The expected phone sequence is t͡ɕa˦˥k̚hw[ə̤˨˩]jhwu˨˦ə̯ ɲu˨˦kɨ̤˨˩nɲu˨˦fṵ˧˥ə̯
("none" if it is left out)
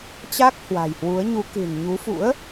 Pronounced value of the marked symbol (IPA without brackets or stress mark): a̤˨˩